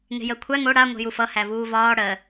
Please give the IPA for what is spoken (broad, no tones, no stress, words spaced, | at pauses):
ŋe̤jɜkʷʰæ ŋo ɽa ŋʷe̤jufʌ hævuːvɒː ɽɜ